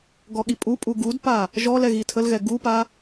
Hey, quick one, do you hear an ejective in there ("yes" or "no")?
yes